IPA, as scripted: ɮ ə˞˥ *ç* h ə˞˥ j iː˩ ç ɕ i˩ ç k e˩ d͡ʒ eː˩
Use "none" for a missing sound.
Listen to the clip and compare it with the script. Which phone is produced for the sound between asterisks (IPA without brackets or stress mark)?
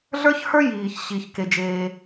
ç